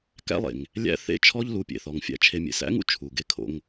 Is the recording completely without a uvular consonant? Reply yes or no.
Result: yes